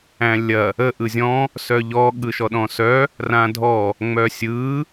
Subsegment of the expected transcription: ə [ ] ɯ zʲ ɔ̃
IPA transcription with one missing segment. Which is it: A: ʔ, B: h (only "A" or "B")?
A